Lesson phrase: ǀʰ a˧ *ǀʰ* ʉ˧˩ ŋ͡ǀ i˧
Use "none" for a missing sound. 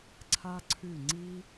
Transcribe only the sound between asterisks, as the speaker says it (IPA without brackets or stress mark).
ǀʰ